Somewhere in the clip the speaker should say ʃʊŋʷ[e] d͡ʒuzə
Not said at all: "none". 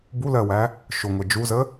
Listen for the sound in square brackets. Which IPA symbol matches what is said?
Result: ɛ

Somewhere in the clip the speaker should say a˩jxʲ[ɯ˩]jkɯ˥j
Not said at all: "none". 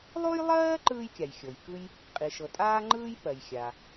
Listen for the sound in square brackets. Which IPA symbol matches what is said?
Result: ɤ˩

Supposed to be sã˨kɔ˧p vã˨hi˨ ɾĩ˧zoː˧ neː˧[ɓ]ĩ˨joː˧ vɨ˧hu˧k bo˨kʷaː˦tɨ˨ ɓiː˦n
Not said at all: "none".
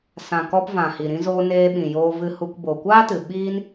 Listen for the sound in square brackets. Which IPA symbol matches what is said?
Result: ɓ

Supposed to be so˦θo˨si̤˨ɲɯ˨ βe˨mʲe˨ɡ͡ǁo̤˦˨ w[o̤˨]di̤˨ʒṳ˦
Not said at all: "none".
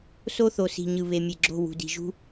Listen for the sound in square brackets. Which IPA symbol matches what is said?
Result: ṳ˨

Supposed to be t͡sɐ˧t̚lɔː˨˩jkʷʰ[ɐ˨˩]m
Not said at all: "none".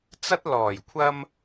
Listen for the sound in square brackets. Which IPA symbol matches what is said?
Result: ɐ˧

